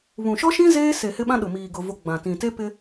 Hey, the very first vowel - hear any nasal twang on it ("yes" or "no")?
yes